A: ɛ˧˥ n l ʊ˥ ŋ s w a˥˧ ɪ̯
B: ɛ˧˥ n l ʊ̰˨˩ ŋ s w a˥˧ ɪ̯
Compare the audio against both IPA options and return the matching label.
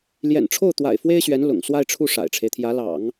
B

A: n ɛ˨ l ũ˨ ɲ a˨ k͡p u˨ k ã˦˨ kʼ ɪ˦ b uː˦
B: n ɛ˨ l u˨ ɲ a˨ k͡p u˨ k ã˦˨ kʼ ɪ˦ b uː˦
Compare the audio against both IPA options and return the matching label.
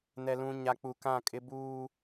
A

